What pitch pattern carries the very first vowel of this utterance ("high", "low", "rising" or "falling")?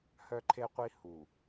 high